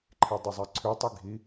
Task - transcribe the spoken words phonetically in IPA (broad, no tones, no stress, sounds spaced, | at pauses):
ǃʰ e dˤ ʏ zˤ ɛ ǀʰ ʉ tˤ i ɡʱ i